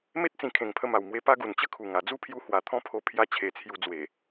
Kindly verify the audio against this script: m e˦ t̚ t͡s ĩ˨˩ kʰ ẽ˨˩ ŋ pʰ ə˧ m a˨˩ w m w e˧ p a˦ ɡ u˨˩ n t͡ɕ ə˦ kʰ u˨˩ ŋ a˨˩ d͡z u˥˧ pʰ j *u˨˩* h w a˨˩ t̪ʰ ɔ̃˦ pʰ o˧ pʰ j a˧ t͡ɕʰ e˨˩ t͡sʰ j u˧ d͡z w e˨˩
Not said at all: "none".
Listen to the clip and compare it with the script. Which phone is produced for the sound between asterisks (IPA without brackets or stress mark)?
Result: u˧